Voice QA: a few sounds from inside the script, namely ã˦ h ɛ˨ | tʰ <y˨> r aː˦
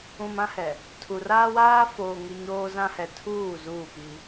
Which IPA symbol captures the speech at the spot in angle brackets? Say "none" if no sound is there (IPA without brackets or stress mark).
u˨